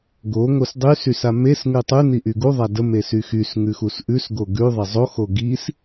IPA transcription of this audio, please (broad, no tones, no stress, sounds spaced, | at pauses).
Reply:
ɡ o ŋ o s dˤ y s y s a m e s ŋ ʉ tˤ ʉ n i ʔ y ɡ u ðˤ a d ə m e s y x y s ŋ ʉ x u s ʔ ʉ s ɡ o ɡ ʉ ðˤ e zˤ o x o ɡ i s